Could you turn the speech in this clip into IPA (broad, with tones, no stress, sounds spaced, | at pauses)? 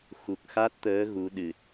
x u˨˩ k̚ x a˦˥ t̚ t̪ əː˨˦ ɣ u˨˦ ɗ ɨ˨˩ t̚